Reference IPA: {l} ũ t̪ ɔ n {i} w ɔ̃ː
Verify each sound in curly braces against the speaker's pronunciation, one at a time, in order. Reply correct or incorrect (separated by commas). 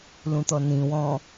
correct, incorrect